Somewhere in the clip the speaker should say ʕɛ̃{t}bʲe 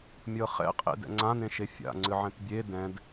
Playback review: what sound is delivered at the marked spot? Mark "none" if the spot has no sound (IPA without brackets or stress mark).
t